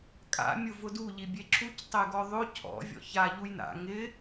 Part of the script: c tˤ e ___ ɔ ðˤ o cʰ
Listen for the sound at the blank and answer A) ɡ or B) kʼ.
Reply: A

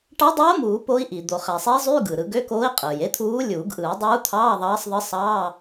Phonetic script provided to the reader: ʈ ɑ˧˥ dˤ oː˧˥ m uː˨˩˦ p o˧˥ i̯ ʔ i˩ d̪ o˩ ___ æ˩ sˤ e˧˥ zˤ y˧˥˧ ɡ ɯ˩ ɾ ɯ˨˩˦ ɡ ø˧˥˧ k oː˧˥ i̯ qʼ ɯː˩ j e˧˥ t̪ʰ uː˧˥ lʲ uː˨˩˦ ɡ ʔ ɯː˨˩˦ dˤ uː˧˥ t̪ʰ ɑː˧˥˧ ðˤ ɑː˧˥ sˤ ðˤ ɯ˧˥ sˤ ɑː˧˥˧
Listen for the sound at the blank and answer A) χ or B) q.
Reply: A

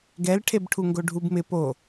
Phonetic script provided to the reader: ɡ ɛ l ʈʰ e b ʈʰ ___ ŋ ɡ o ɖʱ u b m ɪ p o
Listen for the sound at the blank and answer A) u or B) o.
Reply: A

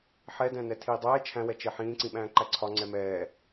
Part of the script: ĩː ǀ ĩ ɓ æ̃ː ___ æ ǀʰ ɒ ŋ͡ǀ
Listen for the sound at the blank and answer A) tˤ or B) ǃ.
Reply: B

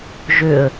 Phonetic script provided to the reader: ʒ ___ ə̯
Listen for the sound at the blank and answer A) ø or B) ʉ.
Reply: A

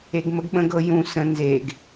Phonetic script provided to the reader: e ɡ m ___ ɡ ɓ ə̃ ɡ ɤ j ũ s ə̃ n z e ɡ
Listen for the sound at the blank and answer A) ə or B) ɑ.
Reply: A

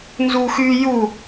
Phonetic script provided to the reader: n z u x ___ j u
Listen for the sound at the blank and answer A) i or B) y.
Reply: B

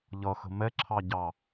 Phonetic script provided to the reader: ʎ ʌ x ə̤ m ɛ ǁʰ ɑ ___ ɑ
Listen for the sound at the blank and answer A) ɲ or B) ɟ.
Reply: B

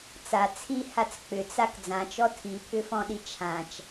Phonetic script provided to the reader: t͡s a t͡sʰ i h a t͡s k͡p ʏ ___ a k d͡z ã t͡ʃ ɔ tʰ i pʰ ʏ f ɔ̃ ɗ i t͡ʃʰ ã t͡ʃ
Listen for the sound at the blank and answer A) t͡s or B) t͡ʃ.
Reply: A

